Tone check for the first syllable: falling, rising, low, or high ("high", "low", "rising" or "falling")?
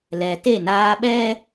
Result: low